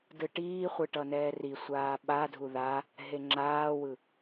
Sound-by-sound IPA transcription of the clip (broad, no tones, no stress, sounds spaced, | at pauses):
d ɯ ʈ iː χʷ ɯ ʈ ʌ n ɛː r i sʷ aː ɓ a dʱ u ð a | ɦ e ŋ͡ǁ aː w ɯ